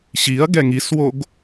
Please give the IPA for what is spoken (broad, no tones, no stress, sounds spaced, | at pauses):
ɕ i ɐ̯ ɡ ɛ ŋ i s w o ɡ